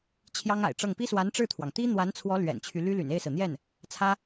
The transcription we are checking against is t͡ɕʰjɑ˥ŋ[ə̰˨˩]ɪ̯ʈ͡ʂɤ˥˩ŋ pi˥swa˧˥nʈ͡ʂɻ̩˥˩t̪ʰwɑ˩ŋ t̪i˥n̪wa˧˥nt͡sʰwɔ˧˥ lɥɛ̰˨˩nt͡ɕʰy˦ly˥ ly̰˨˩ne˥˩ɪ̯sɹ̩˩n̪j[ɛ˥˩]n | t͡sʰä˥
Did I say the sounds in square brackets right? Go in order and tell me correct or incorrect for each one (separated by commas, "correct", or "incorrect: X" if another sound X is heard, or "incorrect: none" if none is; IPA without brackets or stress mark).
incorrect: a̰˨˩, correct